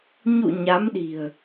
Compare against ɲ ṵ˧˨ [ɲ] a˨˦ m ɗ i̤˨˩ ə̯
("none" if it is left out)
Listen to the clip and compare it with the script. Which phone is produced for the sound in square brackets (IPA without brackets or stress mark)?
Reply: ɲ